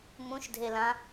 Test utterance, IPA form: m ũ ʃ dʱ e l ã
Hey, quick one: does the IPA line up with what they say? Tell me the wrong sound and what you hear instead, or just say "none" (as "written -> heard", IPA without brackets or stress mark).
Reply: none